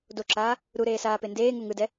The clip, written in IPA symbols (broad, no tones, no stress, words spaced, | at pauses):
doǁaː | ɾuɾeːsaːpe ndeːŋu ŋɯdɛ